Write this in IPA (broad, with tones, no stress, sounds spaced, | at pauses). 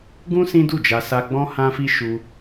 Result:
ɡ ũ˦ s ĩ˦ d u˦˨ d͡ʒ a˧ s a˧ ɡ͡b ɔ̃˦ h ã˦ f i˦ ʃ u˦